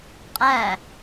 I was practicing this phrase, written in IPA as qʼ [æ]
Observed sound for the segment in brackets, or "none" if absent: æ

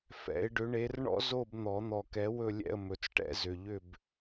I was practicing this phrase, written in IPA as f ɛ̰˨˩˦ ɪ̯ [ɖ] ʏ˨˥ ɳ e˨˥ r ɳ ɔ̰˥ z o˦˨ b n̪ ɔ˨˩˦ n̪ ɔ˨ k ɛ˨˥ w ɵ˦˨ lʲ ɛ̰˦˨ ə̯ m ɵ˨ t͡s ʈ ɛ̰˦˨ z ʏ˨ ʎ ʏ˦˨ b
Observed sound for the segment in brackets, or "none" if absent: ɖ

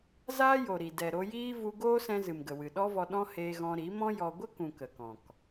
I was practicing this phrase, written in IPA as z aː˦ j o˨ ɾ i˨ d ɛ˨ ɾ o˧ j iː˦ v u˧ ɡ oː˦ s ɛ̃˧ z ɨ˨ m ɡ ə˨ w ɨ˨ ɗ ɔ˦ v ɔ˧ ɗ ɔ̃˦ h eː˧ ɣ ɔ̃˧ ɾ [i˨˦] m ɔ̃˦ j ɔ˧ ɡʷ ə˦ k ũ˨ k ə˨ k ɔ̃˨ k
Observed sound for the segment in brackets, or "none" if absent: i˨˦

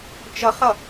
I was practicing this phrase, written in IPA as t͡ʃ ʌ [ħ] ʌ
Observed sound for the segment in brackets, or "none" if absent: χ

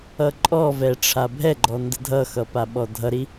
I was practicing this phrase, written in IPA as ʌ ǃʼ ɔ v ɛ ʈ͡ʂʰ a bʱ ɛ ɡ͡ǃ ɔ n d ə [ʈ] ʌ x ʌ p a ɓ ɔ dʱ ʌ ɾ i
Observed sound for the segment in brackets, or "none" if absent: dʱ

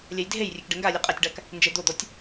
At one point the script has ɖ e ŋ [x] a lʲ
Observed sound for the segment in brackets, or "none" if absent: ɡ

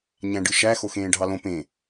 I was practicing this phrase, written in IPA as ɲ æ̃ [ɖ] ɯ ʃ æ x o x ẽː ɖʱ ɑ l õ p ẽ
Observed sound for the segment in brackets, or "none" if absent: ɖ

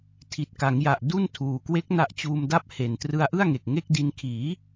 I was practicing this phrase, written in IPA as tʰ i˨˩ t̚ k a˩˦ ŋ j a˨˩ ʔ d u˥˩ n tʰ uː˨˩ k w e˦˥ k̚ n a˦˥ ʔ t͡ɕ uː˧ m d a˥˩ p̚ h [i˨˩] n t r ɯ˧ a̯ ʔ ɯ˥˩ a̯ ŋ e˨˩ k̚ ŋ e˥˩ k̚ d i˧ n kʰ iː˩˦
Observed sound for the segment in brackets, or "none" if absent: e˨˩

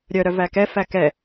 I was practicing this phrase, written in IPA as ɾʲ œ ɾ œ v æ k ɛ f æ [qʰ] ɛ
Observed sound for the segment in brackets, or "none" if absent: k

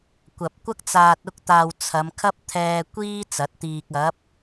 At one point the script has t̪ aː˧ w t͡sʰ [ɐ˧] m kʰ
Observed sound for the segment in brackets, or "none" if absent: ɐ˨˧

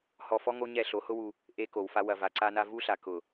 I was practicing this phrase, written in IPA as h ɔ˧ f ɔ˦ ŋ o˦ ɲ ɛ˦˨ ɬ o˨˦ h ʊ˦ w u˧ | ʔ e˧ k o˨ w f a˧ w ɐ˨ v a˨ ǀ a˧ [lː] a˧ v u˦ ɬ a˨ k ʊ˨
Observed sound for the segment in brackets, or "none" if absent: n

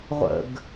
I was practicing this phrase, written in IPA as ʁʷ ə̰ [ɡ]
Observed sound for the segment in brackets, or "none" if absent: ɡ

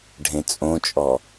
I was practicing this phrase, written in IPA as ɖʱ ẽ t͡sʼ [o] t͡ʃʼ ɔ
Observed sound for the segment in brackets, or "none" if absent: õ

